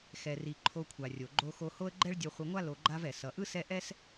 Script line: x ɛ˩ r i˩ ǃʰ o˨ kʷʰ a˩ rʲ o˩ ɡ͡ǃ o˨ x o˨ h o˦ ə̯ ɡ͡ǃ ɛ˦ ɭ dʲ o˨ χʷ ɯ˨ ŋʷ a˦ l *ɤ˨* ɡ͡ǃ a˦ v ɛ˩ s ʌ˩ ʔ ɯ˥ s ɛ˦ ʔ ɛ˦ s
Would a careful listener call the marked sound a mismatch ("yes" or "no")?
yes